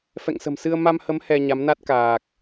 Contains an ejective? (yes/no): no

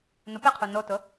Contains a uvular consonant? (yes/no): yes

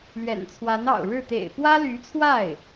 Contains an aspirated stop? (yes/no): yes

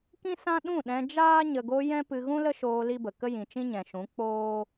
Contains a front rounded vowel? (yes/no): no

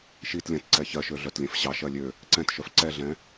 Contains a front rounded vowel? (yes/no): yes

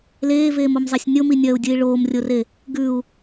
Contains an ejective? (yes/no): no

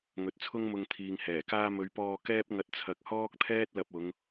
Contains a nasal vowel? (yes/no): no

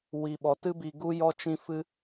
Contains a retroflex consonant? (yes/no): no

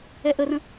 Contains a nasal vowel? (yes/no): yes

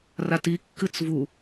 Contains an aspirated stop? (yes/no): no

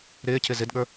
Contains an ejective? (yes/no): no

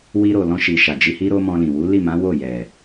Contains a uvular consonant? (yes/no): no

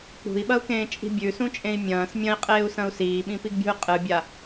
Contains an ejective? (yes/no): yes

